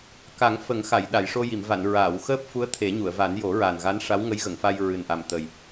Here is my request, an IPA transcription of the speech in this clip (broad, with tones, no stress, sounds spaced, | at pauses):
k a˨˩˦ ŋ f ə˨˩˦ ŋ x a˨˩˨ j ɗ a˨˩˨ j ʂ o˧ j i˨˩˨ m v a˨˩˨ n ɹ aː˨˩˨ w x əː˦˥ p̚ f u˧˥ ə̯ t̪ʰ e˨˩˦ ɲ u˨˩˨ ə̯ v a˨˩˦ n j o˨˩˦ ɹ a˨˩ n ɣ a˧˥ n ʂ a˧˥ w ŋ ə˧˥ j ɣ ə˨˩˨ ŋ f a˧ j ɹ ɨ˨˩ n ʔ a˨˩ m t̪ ə˨˩ j